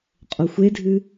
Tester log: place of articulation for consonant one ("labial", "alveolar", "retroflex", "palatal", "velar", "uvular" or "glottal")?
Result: uvular